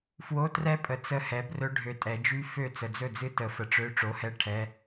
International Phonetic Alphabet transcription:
fwo˧˥˧trɛ˦˥pʼə˨ t͡sə˥˩hɛ˩˥brɵ˦˥ ɖʱø˨tʼɛ˨˩˦d͡ʒy˦˥ fø˥˩ t͡sə˨d͡zɵ˥˩d͡zɨ˦˥ tə˨˩˦ fə˨ʈ͡ʂø˧˥˧ ʈ͡ʂo˩˥hɛ˧˥˧ ʈʰɛ˧˥˧

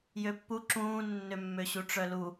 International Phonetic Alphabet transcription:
jøpːu ǁũːnːømːø ɕuʈ͡ʂœlu

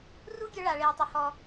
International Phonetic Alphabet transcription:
ru˦ɡʲœ˧ ɭa˨ɭeː˨tˤø˨ hɔ˨

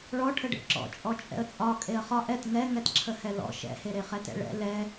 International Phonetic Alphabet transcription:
ɭɔʈʰəɖḛ ǁɔ̰t͡ʃʼɔ t͡ʃʼɛ̰ə̯t͡sʼɒ kʼeə̯χɒ ʔɛt ŋɛ ŋɛtǁʰəhɛlɔ̰ ʃɛ̰heɾe χɛtɛ̰ɭɛ̰ lɛ

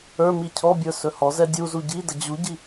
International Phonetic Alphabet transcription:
ə˞mi cʰɔbʲə˞ sɵhɔzɛ dʲuzu ɟidə d͡ʑuɟi

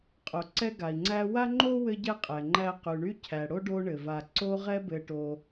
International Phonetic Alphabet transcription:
qʼo˩ǀɛ˦ɡa˩i̯ŋ͡ǀæ˦ wa˥ŋ͡ǃo˥ wɘ˥ɟɛ˥qʼɛ˩ŋ͡ǃæ˦ qy˩ɳy˦ cʰæ˩ ɽo˥ɖo˦ɳɘ˩va˨ ǀo˦ʁɛ˦ bɘ˨ʈo˨

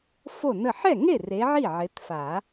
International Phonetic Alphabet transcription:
fo˥˩nə˥˩ ħɛ˥˩ŋe˥˩re˨˦ ʕi˥˩ʕɪ˨˦tfa˨˩˦

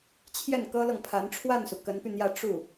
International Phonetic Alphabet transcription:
t͡ɕʰjɛ˥˩nkɤ˥lɤ˨ŋpʰa˧˥n ʈ͡ʂʰwa˥˩nsu˩ kə˧˥npy˧n̪jä˥˧ ʈ͡ʂu˥˩

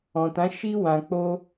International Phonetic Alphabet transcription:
ɔ̃˨tã˨˦ ʃi˧ wã˨k͡po˧

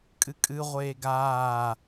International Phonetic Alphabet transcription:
kʼɨkʼɨ ʁʷeːɡaː

